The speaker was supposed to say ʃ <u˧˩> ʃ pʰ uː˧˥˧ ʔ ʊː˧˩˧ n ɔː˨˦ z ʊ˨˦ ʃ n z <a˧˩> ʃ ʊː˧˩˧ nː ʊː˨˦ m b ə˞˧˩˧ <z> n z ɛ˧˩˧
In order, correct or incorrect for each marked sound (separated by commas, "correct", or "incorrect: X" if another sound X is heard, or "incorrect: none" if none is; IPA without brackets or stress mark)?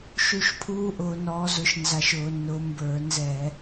correct, correct, incorrect: none